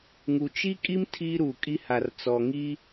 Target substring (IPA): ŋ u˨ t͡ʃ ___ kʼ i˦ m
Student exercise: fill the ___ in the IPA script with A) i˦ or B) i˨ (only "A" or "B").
A